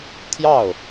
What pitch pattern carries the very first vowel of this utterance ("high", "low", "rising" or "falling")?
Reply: falling